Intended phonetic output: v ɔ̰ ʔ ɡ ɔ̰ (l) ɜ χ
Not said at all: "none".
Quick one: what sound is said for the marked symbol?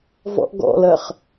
l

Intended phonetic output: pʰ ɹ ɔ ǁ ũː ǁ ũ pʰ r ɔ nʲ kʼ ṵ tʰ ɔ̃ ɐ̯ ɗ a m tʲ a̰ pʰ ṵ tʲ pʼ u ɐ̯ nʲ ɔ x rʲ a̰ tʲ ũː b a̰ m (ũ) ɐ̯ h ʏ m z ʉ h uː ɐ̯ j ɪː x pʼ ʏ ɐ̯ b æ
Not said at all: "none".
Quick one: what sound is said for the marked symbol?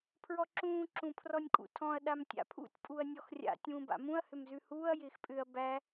ũ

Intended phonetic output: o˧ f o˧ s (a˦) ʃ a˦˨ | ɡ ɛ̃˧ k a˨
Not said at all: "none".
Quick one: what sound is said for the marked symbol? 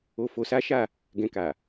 a˦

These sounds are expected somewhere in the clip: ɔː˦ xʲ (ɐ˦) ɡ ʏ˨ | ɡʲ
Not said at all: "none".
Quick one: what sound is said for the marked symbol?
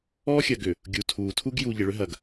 ɐ˨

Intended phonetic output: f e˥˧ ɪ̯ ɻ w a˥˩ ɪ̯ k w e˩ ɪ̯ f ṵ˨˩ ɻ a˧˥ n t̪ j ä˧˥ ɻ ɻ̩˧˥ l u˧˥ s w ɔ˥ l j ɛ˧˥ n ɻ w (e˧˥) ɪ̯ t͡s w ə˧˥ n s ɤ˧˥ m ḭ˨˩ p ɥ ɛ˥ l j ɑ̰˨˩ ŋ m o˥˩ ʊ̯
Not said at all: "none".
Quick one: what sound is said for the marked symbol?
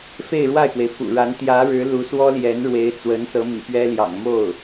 e˧˥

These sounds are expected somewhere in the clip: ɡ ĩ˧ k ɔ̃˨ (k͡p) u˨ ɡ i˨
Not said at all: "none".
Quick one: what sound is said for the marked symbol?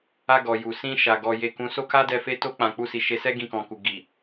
k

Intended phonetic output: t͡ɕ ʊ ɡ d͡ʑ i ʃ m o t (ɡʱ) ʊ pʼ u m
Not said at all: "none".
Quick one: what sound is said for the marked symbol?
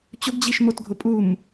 ɡʱ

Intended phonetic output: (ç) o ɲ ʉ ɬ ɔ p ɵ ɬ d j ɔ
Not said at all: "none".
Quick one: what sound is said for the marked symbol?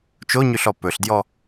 t͡ʃ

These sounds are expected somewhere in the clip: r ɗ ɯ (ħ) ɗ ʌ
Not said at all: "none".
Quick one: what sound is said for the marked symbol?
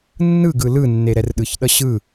ç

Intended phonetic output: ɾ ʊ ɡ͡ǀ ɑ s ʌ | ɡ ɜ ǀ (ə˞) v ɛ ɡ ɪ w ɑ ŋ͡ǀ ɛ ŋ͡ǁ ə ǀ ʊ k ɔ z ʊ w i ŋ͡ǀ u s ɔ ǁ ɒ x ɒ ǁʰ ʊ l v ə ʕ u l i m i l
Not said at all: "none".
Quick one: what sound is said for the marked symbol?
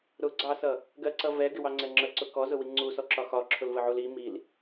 ʌ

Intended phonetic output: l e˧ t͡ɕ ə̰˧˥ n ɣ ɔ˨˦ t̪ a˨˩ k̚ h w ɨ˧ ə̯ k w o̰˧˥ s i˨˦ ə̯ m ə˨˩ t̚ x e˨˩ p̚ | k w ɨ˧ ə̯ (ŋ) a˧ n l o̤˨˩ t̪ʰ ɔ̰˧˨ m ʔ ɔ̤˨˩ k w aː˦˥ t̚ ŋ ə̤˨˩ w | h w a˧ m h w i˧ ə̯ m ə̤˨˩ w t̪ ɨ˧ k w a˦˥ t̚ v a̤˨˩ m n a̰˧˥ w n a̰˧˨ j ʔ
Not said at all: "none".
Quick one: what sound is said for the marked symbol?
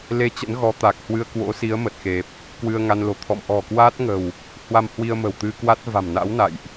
ŋ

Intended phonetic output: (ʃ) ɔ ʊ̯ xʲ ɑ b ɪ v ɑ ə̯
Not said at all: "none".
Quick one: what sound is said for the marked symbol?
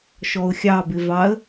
ʃ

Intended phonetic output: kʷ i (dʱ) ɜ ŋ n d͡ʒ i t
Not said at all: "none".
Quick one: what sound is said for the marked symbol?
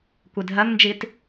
dʱ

